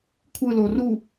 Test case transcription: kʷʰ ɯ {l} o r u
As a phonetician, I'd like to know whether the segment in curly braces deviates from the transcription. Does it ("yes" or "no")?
no